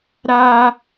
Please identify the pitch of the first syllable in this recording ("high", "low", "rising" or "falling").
high